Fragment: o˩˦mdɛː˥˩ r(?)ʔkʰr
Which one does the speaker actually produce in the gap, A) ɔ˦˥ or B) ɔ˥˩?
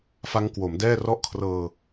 B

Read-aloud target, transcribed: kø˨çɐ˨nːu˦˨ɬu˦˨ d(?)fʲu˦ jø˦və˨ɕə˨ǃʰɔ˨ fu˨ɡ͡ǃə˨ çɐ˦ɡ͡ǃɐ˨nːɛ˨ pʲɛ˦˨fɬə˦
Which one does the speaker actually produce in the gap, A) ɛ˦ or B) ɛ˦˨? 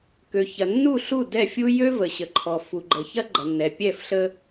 B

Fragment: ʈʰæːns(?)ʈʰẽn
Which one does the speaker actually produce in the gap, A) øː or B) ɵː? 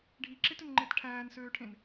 A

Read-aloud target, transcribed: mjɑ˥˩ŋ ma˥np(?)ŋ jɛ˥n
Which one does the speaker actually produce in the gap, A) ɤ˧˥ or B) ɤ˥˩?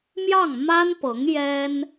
A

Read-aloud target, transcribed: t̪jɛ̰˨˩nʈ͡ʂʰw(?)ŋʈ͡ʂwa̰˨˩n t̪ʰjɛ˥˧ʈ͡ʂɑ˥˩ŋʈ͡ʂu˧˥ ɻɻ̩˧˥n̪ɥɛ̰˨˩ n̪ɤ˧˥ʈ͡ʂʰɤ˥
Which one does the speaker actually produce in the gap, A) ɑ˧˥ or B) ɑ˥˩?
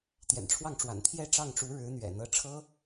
B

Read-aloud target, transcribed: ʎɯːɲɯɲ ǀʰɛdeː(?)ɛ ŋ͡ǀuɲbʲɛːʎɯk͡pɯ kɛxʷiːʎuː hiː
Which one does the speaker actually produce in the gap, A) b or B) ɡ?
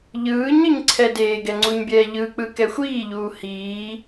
B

